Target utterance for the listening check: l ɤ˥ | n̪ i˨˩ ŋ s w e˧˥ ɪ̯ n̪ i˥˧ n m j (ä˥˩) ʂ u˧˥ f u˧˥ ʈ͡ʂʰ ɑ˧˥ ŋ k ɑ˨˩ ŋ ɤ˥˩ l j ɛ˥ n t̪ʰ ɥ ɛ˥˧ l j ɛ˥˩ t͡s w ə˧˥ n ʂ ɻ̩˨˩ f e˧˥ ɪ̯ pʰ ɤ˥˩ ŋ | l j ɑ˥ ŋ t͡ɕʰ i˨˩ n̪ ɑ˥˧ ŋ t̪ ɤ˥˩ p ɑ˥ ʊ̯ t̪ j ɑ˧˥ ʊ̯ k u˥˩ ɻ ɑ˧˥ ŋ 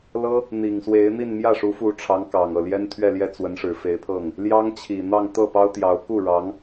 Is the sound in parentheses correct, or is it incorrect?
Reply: correct